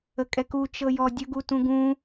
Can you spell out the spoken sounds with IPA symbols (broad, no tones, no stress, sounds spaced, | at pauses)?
ə kʼ ɛ k u t͡ʃ ɤ j ɔ dʲ ə ɡ u t ũ ɡ ũ